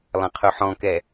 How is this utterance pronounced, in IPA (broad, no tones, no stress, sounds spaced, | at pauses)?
lˠ ɐ̃ qʰ ʊ ħ ɔ̃ k ɛ